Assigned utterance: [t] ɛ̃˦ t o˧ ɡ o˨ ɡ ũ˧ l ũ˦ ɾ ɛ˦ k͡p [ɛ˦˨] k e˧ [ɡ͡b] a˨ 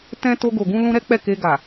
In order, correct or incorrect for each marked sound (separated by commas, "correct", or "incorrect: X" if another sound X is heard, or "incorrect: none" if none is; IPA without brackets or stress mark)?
correct, correct, incorrect: ɡ